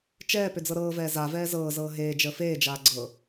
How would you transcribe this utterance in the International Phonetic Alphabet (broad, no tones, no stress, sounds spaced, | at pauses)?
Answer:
t͡ʃ ɛː p ʏ d͡z ɤ ɾ ɤː v ɛː z a v ɛː z ɤː z ɤː ɦ eː d͡ʒ əː f eː d͡ʒ aː ɡ͡ǀ ɤ